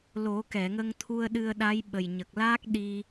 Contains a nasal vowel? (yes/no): no